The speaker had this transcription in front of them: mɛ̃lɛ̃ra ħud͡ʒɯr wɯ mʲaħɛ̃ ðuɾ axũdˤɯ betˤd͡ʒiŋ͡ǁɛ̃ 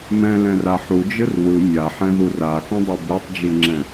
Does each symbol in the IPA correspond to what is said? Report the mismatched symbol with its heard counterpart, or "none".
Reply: ɾ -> r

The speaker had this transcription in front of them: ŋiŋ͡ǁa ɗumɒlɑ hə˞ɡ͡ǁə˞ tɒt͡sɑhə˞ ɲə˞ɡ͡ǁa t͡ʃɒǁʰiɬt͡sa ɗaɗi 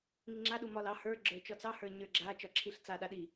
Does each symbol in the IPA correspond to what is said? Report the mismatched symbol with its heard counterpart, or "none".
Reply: t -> t͡ʃ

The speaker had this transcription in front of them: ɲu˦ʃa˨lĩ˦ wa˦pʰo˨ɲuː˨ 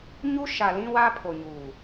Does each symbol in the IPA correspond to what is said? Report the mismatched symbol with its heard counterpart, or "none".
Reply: none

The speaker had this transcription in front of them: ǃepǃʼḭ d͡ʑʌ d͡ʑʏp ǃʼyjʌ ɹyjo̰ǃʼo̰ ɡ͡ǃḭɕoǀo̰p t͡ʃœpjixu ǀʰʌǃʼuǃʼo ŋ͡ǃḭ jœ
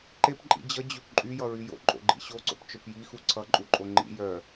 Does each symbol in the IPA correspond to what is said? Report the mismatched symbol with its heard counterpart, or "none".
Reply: none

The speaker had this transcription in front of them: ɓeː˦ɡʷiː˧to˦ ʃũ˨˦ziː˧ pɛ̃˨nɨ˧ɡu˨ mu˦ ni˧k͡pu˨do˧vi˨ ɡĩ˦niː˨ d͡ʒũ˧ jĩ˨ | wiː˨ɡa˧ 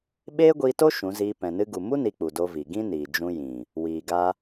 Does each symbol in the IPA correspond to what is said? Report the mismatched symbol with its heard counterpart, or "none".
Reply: none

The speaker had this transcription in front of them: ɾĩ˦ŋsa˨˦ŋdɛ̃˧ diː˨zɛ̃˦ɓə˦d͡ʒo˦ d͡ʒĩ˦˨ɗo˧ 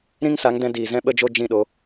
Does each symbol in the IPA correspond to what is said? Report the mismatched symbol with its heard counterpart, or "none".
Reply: none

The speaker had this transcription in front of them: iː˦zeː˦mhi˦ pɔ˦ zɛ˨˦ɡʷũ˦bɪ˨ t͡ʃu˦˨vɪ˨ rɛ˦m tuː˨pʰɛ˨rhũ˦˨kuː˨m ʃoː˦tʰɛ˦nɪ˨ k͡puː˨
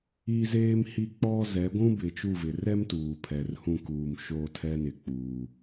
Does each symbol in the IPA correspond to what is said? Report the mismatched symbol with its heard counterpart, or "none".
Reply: p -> k͡p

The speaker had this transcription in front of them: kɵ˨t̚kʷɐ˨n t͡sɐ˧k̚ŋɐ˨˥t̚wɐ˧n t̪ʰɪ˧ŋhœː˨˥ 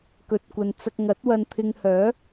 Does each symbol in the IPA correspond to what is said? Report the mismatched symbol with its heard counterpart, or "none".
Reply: none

